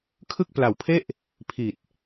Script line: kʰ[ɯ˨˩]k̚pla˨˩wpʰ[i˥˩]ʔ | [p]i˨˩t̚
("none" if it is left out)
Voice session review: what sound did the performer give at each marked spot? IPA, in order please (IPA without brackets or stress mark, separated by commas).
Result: ɯ˥˩, e˥˩, pʰ